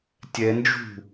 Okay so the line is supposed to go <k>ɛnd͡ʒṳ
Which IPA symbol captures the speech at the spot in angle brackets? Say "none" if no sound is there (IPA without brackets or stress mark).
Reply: tʲ